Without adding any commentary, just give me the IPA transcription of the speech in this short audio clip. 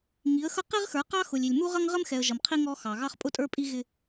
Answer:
ŋi˨˦ə̯xʌ˦ qi˦ʁxə˞˨˦qɑ˦ xʊ˨lʲi˨lʲ mu˦ʁʌ˦ŋʁə˦mxɛ˨ə̯ ʒʌ˨mqʰi˦ ŋɔ˦xɑ˨ ɣɑ˦χpʼʊ˦tʼə˞˦pʼi˦ ɣɪ˦

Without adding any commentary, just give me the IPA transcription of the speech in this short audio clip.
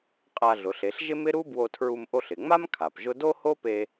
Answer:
qʼa˧ɮʊ˩˧ɬ e˩˧ɬʒɪ˥mɪ˥ ɾu˥bwo˧tʰɹu˧m ʔo˧ɬɪ˩ ŋ͡ma˥m kʰa˩pʒʊ˥ do˥ho˥pe˧

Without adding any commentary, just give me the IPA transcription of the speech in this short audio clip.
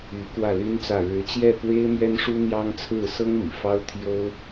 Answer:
y˧˥ kwä˥˩ly˥nt͡sä˥˩ ɻɻ̩˧˥t͡ɕjɛ˥˩ pwe˥ɪ̯ mɥɛ˥nʂu˥n̪jɑ˥ŋ t͡sʰɹ̩˥˩sɤ˥ŋmḭ˨˩ fɑ˥ʊ̯t̪ʰjo˥ʊ̯

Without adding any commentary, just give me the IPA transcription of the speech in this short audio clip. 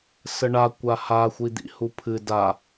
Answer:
səɳa kʷaha xʷid̪ḭhupʰɨ da

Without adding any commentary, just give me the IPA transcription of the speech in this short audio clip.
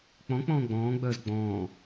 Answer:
k͡pɔ̃k͡pɔ̃ː ɡ͡bɔ̃ːɡ͡bœːz ɡ͡bɔ̃ː

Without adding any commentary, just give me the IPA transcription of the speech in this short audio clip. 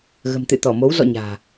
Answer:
ɣə̤˨˩mt̪ɨ̰˧˨t̪ɔ˧˩mo˨˦w zɔ̰˧˨ ɲa̤ː˨˩

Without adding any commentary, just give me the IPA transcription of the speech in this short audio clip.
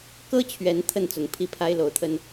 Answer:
kɤ˦t͡ɕʰɥɛ˨˦n t̪ʰə˥˨nt͡sʊ˨˦ŋ pʰi˥˨pʰa˦ɪ̯lo˨˦ʊ̯t̪ʰə˦n

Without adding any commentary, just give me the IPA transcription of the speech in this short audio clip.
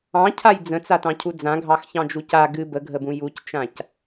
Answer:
ɑ̃cʰaj d͡zə̃t͡satɑ̃cʰu d͡zãɡʱɑxçɑ̃d͡ʒu ca ɡɨ bəɡʱəbũ juct͡ʃãc

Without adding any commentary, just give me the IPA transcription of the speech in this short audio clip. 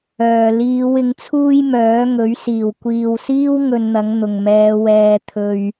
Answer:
œː˨˩ liː˨˧w ɪ˨˥ŋt͡sʰuː˥j mœː˨˥ŋɵ˨˥ɥ siː˨˩wkʷiː˨wsiː˥w ŋɵ˧nn̪ɐ˨˥ŋ n̪ʊ˨˩ŋmɛː˨˧ wɛː˨ t̪ʰɵ˨ɥ

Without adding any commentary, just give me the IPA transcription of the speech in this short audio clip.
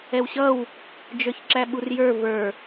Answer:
ɛwɕʌw | d͡ʒə˞çǁæɓurjə˞ və˞

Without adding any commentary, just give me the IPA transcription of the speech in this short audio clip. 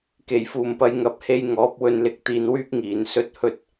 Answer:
ke˨˩jfuː˨˩mpɐ˨j ŋɐ˨˥p̚he˧j ŋɔː˨˥p̚wɵ˧nlɪ˧k̚ t̪iː˧nwyː˥k̚ŋiː˨˧n sɵ˥t̚ hɵ˥t̚

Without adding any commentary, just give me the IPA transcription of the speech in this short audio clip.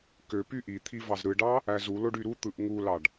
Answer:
kø pyʔit̪ʰi vɑzɾɯɖɑ | æzuloɖ yɾut̪ɯʔ ŋulɑɖ

